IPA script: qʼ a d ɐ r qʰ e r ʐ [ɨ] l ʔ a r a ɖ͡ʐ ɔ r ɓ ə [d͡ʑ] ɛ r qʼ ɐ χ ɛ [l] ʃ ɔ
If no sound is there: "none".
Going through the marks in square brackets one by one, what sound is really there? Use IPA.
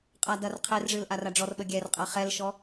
ɨ, ɡʲ, l

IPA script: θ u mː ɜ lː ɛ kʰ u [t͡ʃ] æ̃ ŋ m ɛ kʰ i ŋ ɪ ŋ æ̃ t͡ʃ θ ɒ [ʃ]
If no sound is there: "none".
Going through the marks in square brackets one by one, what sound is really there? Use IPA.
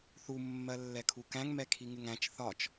k, t͡ʃ

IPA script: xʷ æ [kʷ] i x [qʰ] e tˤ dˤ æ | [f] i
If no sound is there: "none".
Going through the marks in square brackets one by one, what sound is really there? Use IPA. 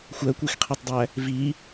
kʷ, qʰ, v

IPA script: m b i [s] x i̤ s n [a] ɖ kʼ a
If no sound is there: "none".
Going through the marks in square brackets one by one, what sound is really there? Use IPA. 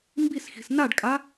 s, a

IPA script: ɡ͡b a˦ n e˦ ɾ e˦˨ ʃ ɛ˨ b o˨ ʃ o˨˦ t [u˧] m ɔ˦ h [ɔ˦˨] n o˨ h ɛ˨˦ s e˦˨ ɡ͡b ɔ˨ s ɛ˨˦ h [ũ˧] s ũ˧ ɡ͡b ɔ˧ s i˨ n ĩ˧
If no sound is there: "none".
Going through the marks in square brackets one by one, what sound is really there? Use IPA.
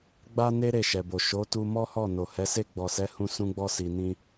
u˧, ɔ˦˨, ũ˧

